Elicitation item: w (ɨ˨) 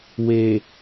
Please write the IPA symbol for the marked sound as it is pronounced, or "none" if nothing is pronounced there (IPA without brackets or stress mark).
e˨